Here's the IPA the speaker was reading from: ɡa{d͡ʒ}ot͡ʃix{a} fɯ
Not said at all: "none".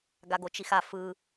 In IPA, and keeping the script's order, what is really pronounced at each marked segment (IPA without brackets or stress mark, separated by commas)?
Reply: ɡ, a